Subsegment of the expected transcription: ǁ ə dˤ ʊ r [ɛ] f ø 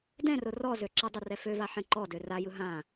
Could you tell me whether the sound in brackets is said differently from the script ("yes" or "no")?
no